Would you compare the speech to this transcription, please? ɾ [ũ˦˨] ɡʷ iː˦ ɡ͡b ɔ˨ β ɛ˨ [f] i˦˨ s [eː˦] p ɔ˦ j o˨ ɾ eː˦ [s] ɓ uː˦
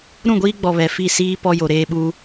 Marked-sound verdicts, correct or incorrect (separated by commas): correct, correct, incorrect, incorrect